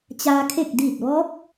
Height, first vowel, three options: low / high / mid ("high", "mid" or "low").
low